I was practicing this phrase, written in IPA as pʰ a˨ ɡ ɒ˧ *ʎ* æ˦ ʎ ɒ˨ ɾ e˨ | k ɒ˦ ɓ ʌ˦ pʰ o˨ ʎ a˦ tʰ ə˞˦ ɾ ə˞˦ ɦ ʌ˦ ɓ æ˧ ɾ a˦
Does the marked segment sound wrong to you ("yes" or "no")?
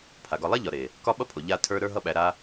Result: yes